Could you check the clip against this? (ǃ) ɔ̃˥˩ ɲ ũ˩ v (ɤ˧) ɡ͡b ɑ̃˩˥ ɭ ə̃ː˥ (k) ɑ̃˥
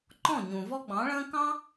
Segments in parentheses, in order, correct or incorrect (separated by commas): correct, incorrect, correct